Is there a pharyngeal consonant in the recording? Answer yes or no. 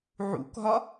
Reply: yes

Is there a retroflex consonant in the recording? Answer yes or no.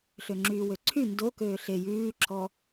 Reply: no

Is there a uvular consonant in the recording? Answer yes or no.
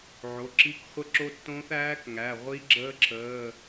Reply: yes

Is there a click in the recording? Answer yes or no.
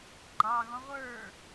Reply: yes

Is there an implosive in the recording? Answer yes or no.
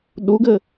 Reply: yes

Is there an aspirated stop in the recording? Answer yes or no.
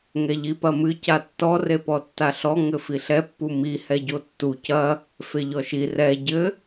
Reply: no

